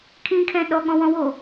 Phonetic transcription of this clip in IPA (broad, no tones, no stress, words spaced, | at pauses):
kʰĩkʰɛ̃ ɗɔɠɔ̃wɔ̃wo